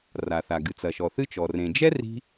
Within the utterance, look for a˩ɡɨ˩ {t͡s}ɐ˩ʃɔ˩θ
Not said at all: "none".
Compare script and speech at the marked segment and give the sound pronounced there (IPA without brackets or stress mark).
t͡s